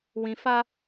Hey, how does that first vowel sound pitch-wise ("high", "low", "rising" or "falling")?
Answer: low